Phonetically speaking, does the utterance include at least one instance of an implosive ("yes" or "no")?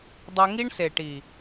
no